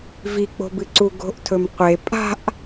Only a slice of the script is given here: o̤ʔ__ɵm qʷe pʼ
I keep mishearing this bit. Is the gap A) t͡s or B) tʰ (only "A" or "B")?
B